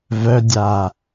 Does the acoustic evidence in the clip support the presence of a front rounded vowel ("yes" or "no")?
yes